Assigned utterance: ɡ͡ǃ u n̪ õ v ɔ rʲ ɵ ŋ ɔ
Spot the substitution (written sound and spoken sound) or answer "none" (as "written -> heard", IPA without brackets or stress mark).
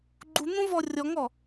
ɵ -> ɔ